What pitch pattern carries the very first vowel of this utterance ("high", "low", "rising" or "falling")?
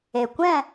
low